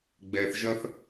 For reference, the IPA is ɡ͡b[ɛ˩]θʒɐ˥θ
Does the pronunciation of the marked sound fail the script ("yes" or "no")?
yes